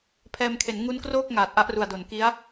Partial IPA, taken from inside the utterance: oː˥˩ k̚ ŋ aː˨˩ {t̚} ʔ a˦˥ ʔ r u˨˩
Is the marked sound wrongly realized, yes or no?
no